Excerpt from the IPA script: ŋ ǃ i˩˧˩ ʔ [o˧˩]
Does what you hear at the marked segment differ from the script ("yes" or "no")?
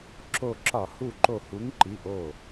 no